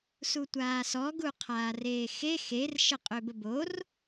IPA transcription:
s u tʷ aː s ɔ ɡ u qʰ aː r eː x e x e r ʃ ə qʼ ø b ə b o r

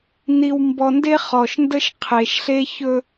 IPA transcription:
n i˨ w m b ɔ˨ n d e˦ χ ɔ˨ ʃ n d ə˦ ʃ qʰ e˨ ʃ ɬ e˦ ç ɵ˦

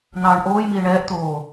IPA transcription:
n̪ ɑː ɳ ʔ oː j m iː ɳ ɛː ʔ t̪ oː

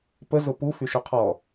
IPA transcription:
p ə z ʊ p u f y ʃ u qʰ ɔ

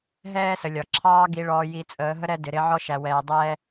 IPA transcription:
ɦ ɛː˦ s ə˨ lʲ ɒ˨ ǁʰ ɑː˦ ɡ i˨ ɭ ɔː˨ j i˨ t͡sʼ əː˨˦ ɦ ə˦ ɾ ɛ˦ d ɪ˨ ɾ ɪ˦ ʕ ɔ˦ ʃ æ˨ w ɛː˨ dˤ ɛː˦

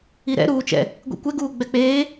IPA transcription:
i ɾ ɛ̰ ɾ uː t͡ʃ ɛ̰ | ɡʷ ḭ kʷ ɛ ɡ uː ɡ͡b ɛ k͡p eː

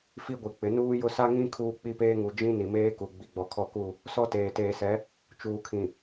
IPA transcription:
f i˦ ɡʷ i˨ k͡p ɪ˨˦ n uː˦ j ʊ˦ s a˦ ŋ ĩ˦ kʰ uː˦ k͡p i˦ p eː˦ ŋ u˨ d͡ʒ ĩ˦ n i˨ m eː˦ k u˨ ɡ͡b i˨ ɡ͡b ɔ˨ kʰ ɔ˦˨ k u˦˨ | s ɔ˦ t eː˨ t eː˨ s ɛ˨˦ | t͡ʃ uː˨ kʰ ĩ˨

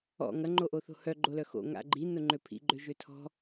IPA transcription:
ɔ̰ ŋ ɐ ŋ͡ǃ o ʔ o θ o̤ h œ ɡ͡ǃ o l œ x o̰ ŋ a̰ ɡ͡ǃ i n ʊ ŋ͡ǃ ø pʰ ḭ ɡ͡ǃ ø ʒ ø tʰ ɔ̤

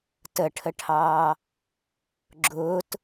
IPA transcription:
t ə ʈʰ ə ʈʰ ɑː | ɡ͡ǁ ʊː t

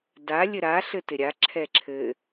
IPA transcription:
d a lʲ ɘ ɾ a ɬ ɘ t ɪ ɾʲ a ǁʰ ɛ ǁʰ ɘ

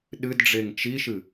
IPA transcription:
ɗ ɨ d ɖ͡ʐ e ŋ t͡ʃ i ʃ ɨ

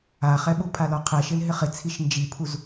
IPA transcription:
a χ ɛ ɓ u pʰ a l ɔ qʰ ɛ ʃ ɪ l ɦ ɪ χ ɪ t͡sʰ i ʃ n d͡ʒ i pʰ u z

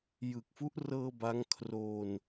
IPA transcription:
j ɯ˨˩ k̚ f u˦˥ ʔ r ɤː˧ b a˦˥ ŋ kʰ r oː˧ n

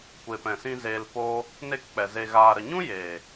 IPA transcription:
kʷ eː˨ p ɛ̃˨ s ĩ˧ z eː˧ l p oː˦ | n e˦˨ k k͡p ɛ˨ z e˨ ɣ aː˨ ɾ ə˨ ɲ ũ˦ j eː˨

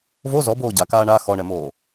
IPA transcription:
v o z ɔ b oː ɟ a k aː ɳ a x ɔ ɳ ɛ m oː

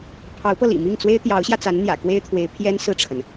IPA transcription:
pʰ ɑ˧˥ ʊ̯ p ɤ˧ l ḭ˨˩ m i˥˩ ŋ t͡s w e˥ ɪ̯ t̪ j ɑ˧˥ ʊ̯ ɕ j ä˧ t͡s a˧˥ n n̪ j ä̰˨˩ k w e˥ ɪ̯ t̪ʰ w e˧˥ ɪ̯ pʰ j ɛ˥ n s ɹ̩˥˩ ʈ͡ʂʰ ə˩ n

